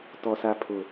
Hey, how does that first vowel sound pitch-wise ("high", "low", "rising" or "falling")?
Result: high